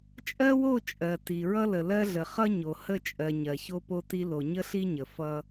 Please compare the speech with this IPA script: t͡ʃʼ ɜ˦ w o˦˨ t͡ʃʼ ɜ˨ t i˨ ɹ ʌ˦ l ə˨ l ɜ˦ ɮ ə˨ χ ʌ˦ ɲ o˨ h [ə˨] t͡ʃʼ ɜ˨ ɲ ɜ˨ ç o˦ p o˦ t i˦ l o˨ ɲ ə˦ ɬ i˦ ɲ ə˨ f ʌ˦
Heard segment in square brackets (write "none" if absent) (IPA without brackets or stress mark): ə˦˨